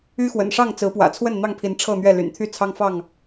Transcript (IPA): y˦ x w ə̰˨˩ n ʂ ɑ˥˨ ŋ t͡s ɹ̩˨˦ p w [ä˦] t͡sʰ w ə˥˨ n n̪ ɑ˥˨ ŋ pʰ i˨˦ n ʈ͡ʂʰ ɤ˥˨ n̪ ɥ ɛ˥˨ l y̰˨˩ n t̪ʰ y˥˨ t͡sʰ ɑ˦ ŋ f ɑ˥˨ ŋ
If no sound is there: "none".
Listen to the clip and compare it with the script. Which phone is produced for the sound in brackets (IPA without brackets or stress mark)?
ä̰˨˩